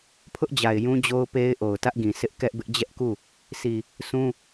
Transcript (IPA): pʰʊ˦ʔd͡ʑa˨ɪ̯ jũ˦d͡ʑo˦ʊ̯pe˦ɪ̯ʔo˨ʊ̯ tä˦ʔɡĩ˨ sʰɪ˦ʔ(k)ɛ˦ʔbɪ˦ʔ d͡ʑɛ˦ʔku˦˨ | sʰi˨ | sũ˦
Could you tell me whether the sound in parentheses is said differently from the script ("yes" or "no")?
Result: no